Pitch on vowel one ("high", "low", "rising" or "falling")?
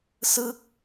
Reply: falling